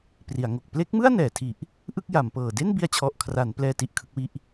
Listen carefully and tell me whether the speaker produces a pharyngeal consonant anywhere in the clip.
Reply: no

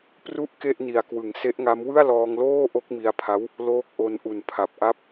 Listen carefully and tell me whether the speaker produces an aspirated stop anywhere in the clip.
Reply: yes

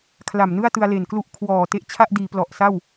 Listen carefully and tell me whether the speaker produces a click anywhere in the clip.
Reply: no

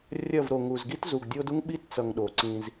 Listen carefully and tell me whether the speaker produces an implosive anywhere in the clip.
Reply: yes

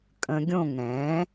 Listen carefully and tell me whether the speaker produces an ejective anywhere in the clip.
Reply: yes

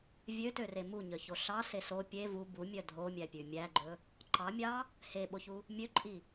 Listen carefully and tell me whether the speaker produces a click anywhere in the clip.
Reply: yes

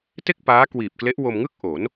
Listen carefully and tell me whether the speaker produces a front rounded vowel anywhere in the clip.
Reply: no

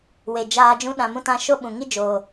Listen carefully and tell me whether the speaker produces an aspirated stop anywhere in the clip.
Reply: no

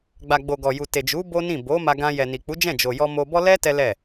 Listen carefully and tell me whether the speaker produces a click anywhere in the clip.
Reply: no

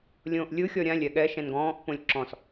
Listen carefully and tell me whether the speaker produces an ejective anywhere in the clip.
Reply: no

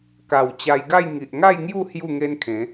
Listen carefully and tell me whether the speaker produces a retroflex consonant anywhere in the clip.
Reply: no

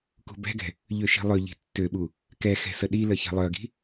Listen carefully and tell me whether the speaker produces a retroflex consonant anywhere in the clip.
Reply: no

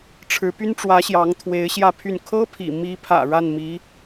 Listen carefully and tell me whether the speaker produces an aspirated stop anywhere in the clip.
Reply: yes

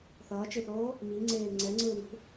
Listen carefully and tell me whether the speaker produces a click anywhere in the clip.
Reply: yes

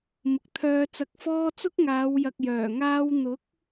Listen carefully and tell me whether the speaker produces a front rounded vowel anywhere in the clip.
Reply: yes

